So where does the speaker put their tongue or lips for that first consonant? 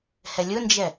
throat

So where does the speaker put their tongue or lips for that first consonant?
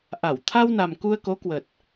throat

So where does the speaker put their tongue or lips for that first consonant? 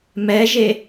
lips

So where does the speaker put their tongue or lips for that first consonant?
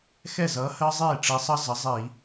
velum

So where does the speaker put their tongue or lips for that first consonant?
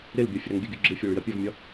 tongue tip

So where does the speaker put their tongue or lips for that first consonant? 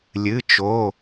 tongue tip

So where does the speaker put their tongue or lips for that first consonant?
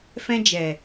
lips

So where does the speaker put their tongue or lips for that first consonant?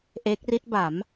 throat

